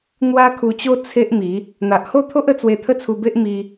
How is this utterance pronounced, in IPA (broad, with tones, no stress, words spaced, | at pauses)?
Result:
n̪wa˦kʰu˧t͡ɕo˦ t͡sʰe˦ʔmi˨˦ | n̪a˨ʔho˥˧t̪ʰo˦ʔ ə˧t͡swe˧ t̪ʰə˦t͡sʰu˧be˦ʔmi˧